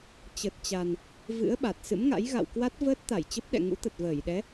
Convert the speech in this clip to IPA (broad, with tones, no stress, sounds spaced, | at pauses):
t͡ɕ ə˨˩ t̚ t͡ɕ a˨˩ n | v ɨ̰˧˥ ə̯ ɓ a˨˩ t̚ s ɨ̰˧˥ m ŋ a̰˧˥ j ɣ a̰˧˨ w k w a˦˥ t̚ v əː˦˥ t̚ t̪ a˧˩ j t͡ɕ ə˦˥ p̚ ɗ ɛ̰˧˨ ŋ ṵ˧˥ t̪ ə˨˩ t̚ v əː˧˩ j ɗ ɛ˨˦